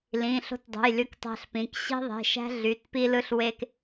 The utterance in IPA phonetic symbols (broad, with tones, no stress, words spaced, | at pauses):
lĩ˩˧˩ ɬo̤˦tdˤṳ˩˧˩j ly˦ktˤæ̤˦ɬpĩ˩˧˩k ɕi̤˦ðˤe̤˩˧˩ʃæ̤˦ ɮy˩˧˩t pi˦lɯ˦ɬ we˦k